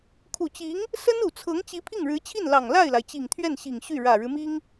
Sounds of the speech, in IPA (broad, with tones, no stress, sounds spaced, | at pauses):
kʰ u˨˩ t͡ɕ i˧˥ ŋ | s ə˥ n u˨˩ t͡sʰ ɤ˧˥ ŋ t͡ɕ i˧˥ pʰ i˥˩ ŋ ɻ ɻ̩˧˥ t͡ɕʰ i˥˩ n l ɑ˨˩ ŋ l a˥˩ ɪ̯ l a˩ ɪ̯ t͡ɕ i˨˩ ŋ t̪ʰ ɥ ɛ˥˩ n ɕ i˨˩ ŋ ɕ y˥˩ ɻ ä˨˩ ɻ ɻ̩˦ m i˥ ŋ